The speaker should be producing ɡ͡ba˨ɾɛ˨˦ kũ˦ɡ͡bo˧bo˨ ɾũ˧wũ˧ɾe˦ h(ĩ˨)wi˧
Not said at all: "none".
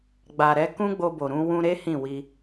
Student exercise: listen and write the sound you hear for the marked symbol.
ĩ˦˨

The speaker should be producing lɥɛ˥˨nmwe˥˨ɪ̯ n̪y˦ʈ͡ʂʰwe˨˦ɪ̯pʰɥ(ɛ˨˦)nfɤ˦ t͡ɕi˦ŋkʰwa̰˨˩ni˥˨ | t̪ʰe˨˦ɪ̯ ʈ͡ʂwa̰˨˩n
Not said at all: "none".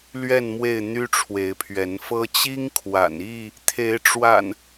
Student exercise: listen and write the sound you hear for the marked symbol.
ɛ˨˦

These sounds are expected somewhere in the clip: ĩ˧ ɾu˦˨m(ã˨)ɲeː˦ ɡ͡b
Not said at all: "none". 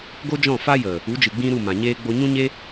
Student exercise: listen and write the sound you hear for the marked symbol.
ã˨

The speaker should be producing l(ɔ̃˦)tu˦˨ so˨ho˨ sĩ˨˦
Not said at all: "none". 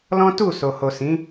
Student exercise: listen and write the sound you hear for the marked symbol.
ɔ̃˦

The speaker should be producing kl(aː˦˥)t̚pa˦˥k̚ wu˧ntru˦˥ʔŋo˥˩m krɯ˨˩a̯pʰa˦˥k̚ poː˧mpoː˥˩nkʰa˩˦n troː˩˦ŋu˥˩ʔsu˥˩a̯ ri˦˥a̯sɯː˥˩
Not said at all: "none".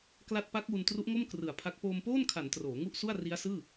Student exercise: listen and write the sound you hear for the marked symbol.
a˦˥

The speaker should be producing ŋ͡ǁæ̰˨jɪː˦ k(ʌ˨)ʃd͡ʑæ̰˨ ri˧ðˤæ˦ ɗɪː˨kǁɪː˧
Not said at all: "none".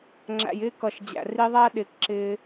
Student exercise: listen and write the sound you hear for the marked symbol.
ʌ˨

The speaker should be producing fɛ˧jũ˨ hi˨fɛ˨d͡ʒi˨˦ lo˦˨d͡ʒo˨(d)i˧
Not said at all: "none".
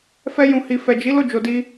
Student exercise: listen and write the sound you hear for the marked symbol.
d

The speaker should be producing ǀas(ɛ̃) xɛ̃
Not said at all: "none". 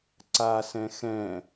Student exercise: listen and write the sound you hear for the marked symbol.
ɛ̃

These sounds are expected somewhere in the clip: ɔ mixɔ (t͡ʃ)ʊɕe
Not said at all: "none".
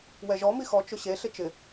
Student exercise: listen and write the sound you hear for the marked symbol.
t͡ʃ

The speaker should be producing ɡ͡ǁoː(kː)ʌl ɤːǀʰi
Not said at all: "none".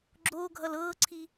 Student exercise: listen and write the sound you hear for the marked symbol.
ɡʱ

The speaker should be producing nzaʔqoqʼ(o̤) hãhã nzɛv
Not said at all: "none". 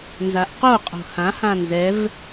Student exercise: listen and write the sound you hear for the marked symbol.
o̤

